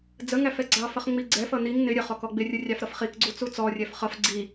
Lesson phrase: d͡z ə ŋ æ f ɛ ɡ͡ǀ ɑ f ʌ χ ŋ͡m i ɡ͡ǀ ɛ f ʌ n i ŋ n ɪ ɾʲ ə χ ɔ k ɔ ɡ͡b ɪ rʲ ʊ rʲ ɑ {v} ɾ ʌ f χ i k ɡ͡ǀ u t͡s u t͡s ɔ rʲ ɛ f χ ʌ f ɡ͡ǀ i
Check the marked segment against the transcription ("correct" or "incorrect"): incorrect